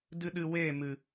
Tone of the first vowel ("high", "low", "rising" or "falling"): high